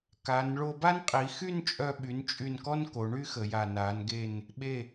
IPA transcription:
k a˩˧ n ɭ o˧ b a˥ n qʼ i˩˧ x y˥˧ n t͡ʃʼ œ˧ ɓ y˩˧ n t͡ʃʼ y˧˩ n k ɔ˥ n k o˩˧ ɳ y˥ x ə˩˧ j a˧˩ n a˩˧ n ɡ e˧˩ n | ɓ e˧˩

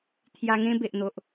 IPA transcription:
t̪ʰ j a˧ ŋ ẽ˦ b e˨ ʔ n̪ o˨ ʔ

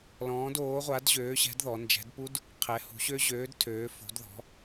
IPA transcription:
l ɔ̃ː˨˦ d oː˨˦ ʁʷ a˨˦ d ʑ øː˨˦ ɕ ɛ̤˨˦ d ð ɔ˨˦ n d͡ʒ ɛ̤˨˦ d p u˦˥ d | qʰ ɛ˨˦ h ṳ˨˦ ɕ ø˦˥ ʑ øː˨˦ d tʰ øː˨˦ f o̤˨˦ d ð ɔ̤˨˦

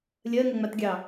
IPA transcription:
lʲ ɜ ŋ ə ŋ͡m a t ɡʲ ɑ

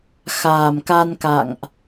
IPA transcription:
x aː˨˩ m k a˧ n k a̰˧˨ ŋ ʔ

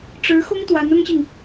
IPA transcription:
ʈ͡ʂ ɻ̩˧˥ x ʊ˥ ŋ t̪ w a˧˥ n ʊ˥ ŋ ɕ i˨ ŋ

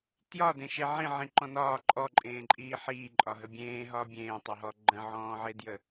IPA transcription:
t j ɒ d ẽ ʃ e ʕ ĩ ʕ ĩ ǃ ɔ̃ n ɒː ǃʼ ɔ ǃʼ ẽː ǃʼ iː ħ iː ǃʼ ɒ ɦ ə bʲ ẽː ɦ ɒː bʲ ẽː tˤ e ɦ ɔ ɡ͡ǃ ə̃ ʕ ɔ̃ː ʕ e d j ə

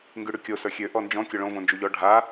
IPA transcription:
ŋ ɡ y ɽ y kʲ o s ə˞ xʲ ø ʔ ɔ n d͡ʒ ɔ̃ kʲ o ɭ õ v õ n d͡ʒ u ʎ ɔ ɖʱ a

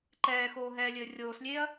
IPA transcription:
ǃ ɛː x oː ɦ ɛː lʲ ɘː rʲ oː s lʲ eː ɐ̯

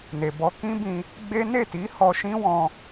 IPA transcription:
n e˨ b ɔ˧ k ĩ˦ b ĩ˧ | ɡ͡b e˦ n e˦˨ t i˨˦ h ɔ˧ ʃ ĩ˦ w ɔ̃˧

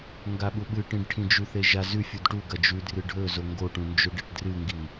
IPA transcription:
ŋ ɡ a ɓ u ɓ ɨ ʈ ĩ ɖ ʈʰ ĩ d͡ʒ ʉ θ e ʒ a z ʉ fʲ u d ʈ u ɡ ɐ d͡ʒ ʉ d r ɨ ɖʱ ɵ z o ŋ ɡ o ʈ ũ n d͡ʒ ɵ ɖ e ʈ d r ɨ ŋ ɡ i

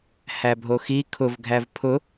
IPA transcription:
h æ bʱ o x i kʰ ʊ v ɡʱ æ v pʰ ʊ

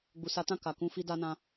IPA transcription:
ɡ͡b u˨ s a˨˦ t ã˦˨ k a˨ k ũ˧ f i˧ d a˧ n ã˧

